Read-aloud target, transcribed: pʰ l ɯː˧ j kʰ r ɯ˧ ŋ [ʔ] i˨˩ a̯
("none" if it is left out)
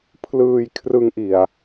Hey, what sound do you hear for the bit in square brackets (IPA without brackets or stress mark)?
ʔ